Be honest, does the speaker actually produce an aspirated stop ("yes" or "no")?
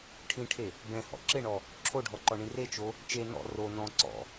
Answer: yes